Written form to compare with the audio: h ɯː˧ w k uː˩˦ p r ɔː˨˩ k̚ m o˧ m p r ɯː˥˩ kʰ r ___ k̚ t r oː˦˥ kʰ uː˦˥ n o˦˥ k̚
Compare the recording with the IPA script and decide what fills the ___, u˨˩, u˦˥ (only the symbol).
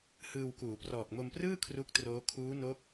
u˦˥